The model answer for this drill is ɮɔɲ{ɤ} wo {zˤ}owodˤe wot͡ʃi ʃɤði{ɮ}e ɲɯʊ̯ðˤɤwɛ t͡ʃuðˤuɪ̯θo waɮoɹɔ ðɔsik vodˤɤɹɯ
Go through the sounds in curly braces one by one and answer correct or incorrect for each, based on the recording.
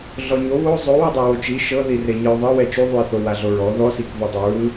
incorrect: o, correct, incorrect: r

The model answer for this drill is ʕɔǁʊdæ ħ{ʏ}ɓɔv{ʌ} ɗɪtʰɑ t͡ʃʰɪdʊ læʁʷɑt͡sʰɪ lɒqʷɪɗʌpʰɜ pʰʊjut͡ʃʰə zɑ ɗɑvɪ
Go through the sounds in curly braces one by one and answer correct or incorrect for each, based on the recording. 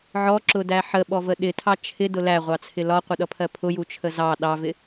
incorrect: ə, incorrect: ə

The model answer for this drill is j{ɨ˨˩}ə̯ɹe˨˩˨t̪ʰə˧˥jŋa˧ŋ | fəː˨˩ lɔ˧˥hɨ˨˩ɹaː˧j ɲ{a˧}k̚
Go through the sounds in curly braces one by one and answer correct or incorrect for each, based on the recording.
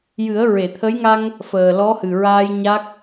incorrect: ɨ˨˩˦, incorrect: a˦˥

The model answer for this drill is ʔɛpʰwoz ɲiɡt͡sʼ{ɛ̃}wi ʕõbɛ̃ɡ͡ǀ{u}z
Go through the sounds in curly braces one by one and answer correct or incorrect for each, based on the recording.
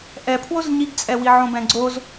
incorrect: ɛ, incorrect: o

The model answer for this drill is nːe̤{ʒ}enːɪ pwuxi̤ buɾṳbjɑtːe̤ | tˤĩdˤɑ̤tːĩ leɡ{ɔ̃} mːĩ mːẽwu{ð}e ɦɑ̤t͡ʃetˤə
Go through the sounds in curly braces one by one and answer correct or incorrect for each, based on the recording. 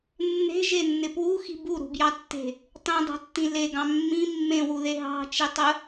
correct, incorrect: ɑ̃, correct

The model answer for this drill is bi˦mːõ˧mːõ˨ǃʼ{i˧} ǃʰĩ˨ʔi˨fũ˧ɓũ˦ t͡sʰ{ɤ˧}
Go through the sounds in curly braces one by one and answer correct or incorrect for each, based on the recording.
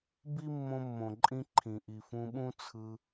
incorrect: ĩ˧, incorrect: ɯ˧

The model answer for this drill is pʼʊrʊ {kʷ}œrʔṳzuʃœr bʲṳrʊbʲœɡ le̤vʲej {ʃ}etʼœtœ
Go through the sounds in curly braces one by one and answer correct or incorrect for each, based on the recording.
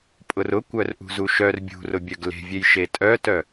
correct, correct

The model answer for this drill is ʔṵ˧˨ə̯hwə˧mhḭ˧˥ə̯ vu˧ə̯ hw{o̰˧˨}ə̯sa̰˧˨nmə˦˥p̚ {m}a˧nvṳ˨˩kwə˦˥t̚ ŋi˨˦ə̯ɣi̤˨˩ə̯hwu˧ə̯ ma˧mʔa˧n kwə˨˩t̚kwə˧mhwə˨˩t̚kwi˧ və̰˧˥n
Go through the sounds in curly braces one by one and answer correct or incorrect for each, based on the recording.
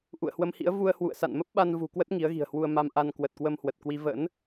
incorrect: ṵ˧˨, incorrect: ɓ

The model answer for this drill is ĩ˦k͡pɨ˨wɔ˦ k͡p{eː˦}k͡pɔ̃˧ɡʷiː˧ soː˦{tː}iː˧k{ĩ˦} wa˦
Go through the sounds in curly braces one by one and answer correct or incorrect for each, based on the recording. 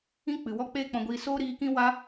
correct, incorrect: ɾ, correct

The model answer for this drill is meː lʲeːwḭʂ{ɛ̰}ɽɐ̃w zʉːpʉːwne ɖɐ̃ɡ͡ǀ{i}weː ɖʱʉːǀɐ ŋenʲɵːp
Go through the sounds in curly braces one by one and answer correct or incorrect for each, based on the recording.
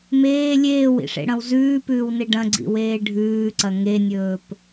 incorrect: ḛ, incorrect: ḭ

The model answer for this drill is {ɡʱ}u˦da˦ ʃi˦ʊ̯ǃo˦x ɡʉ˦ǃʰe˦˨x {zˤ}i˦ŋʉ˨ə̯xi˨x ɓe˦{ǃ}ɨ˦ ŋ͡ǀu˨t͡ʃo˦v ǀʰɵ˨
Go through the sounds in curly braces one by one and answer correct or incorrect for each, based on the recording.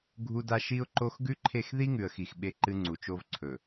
correct, incorrect: ð, correct

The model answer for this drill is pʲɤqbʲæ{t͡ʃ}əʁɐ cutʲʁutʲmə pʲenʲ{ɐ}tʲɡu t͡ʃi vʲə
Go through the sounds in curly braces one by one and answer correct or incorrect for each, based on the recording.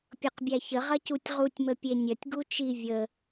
incorrect: ç, correct

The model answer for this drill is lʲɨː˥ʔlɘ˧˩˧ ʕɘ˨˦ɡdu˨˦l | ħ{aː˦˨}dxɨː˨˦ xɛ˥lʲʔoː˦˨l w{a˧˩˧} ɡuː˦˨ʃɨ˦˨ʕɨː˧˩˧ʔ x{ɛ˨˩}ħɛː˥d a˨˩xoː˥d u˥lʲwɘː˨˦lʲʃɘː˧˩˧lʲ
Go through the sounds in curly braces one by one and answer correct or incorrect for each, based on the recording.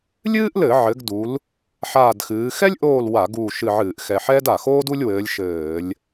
correct, correct, correct

